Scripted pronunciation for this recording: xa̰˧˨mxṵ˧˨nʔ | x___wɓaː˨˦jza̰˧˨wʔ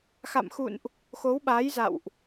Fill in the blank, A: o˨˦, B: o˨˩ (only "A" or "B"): A